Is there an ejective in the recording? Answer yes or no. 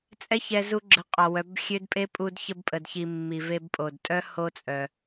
yes